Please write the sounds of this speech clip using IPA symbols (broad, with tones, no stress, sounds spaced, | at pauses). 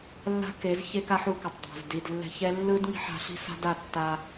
lː a̤˦ k e˨˦ z ç e˦ k a˦ ħ u˧ k ʌ˨ tˤ dˤ a̤˨ z d i˨ d lː ɛ̤˧ ç ɛ˦ lː ɯ˦ d ŋ i̤˦ ħ a̤˧ ɬ i̤˦ s a̤˦ d a˦˨ tː a˧